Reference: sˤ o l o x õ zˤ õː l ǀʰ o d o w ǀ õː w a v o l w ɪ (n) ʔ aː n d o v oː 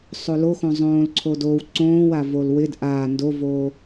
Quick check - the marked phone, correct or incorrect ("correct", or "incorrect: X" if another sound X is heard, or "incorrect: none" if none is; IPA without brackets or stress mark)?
incorrect: d